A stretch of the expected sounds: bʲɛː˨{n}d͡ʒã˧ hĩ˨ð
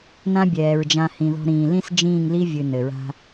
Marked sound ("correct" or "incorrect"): incorrect